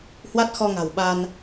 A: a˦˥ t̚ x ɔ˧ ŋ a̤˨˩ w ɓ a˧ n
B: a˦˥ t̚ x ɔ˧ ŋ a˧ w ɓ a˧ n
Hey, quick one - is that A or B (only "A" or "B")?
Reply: A